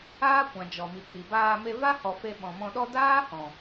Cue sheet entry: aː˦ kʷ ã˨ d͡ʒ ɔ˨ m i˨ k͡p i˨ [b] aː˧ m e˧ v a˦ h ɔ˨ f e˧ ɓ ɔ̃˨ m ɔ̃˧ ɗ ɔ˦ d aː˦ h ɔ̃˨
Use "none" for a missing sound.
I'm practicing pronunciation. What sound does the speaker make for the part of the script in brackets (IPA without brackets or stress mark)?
b